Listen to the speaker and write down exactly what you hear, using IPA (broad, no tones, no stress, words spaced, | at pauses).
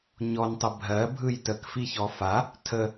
ɲɔntˤə bʱɜbʱɯj təkfiçɔ fa | tʰə